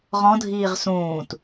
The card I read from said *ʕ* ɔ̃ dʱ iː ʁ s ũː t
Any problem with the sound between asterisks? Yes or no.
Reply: yes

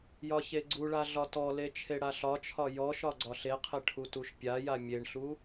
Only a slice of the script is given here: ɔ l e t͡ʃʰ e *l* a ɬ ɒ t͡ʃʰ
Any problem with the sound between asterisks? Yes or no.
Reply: yes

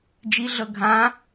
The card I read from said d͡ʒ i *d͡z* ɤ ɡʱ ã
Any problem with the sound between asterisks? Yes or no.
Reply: yes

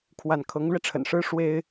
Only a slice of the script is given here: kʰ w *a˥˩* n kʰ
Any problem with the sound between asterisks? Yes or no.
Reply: no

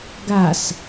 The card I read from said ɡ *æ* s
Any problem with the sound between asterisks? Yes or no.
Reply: yes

